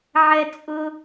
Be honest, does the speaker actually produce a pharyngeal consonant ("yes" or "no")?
yes